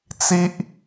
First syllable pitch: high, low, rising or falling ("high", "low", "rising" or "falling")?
high